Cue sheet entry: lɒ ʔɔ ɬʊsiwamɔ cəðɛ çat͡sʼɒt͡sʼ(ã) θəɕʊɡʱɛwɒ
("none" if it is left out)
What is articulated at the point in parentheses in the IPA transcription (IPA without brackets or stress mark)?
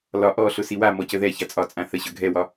ã